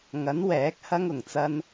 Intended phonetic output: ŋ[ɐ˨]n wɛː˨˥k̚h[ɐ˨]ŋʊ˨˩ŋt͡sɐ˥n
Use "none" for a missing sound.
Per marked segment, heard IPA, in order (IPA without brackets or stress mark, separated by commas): ɐ˨˥, ɐ˥